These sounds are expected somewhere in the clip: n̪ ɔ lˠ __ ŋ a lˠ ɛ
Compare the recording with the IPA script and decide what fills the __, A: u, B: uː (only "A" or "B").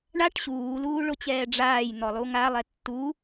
A